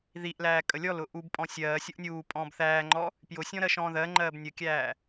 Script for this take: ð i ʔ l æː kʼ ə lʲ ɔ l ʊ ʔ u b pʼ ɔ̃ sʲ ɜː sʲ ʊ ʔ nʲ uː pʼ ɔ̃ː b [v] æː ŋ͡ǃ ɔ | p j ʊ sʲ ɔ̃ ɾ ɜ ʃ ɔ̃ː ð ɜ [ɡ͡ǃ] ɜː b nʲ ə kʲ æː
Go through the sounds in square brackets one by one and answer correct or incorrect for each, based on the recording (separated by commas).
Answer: incorrect, incorrect